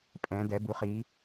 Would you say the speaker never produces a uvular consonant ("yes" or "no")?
no